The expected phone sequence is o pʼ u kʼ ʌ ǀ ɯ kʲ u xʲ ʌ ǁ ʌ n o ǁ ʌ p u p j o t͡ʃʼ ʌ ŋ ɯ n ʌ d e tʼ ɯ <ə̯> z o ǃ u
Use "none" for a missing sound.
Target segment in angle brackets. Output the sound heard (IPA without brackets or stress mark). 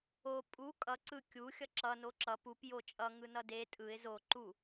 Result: ɪ̯